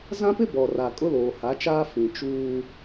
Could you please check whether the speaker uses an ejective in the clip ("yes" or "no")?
yes